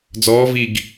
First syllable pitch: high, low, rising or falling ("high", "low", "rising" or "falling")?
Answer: rising